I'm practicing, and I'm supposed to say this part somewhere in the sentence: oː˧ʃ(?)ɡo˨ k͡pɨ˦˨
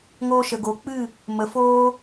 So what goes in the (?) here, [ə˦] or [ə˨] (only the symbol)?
ə˨